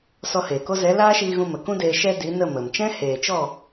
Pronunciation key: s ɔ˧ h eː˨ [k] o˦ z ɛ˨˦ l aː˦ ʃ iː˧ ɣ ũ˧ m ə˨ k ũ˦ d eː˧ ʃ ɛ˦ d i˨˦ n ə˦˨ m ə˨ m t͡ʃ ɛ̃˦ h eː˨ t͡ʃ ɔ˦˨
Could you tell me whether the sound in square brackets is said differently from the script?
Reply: no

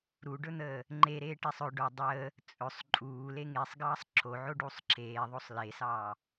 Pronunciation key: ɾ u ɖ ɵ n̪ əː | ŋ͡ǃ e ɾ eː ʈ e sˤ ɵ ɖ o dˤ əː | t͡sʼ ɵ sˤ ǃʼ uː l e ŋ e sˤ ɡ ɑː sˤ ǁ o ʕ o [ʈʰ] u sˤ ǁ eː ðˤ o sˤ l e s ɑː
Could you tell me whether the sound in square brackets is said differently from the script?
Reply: yes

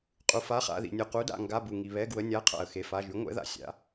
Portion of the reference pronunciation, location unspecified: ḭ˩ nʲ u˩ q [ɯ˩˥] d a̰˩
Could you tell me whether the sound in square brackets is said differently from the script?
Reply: yes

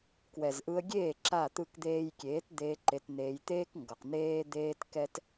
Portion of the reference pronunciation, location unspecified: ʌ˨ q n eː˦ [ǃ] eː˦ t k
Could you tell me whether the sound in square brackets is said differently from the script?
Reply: yes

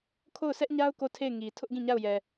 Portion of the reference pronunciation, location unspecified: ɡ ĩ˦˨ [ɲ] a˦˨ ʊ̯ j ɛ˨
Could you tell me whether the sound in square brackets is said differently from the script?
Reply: no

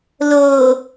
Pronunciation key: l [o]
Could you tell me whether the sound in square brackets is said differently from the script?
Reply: no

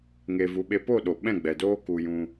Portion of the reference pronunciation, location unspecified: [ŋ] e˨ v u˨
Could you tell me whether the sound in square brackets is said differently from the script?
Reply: no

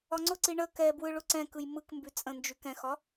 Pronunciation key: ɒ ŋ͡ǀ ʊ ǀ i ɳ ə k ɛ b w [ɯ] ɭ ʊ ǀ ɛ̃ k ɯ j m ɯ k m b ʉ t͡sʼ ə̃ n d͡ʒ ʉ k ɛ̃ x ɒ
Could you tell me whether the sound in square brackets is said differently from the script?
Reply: no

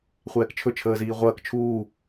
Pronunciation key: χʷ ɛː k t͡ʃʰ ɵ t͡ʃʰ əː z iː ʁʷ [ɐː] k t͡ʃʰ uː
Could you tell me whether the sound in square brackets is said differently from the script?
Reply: no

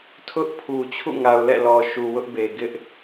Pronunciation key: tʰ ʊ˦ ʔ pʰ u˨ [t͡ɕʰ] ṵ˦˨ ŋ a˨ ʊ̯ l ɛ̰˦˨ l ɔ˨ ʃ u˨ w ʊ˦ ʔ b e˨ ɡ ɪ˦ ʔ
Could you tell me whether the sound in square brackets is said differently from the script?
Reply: no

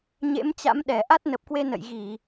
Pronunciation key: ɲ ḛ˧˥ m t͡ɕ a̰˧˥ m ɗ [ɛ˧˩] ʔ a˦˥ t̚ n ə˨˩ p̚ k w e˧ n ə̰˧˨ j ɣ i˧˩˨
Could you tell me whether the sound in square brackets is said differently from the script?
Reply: no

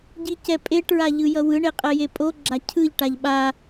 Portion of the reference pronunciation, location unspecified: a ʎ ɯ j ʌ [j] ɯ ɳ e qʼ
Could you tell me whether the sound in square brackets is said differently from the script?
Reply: yes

